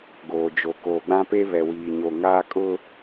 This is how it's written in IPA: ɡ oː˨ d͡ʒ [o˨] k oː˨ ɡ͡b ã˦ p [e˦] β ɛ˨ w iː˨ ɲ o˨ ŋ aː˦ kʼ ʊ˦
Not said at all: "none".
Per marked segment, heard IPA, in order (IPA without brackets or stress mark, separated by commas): o˨, e˦